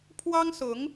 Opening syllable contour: high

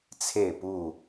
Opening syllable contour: falling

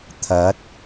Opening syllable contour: rising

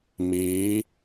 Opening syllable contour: rising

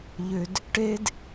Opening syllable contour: low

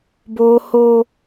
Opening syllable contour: high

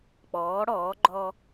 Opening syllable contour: rising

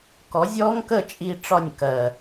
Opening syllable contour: rising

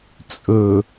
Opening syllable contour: low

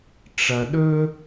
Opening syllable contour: low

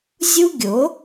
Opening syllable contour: high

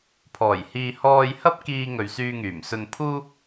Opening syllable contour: low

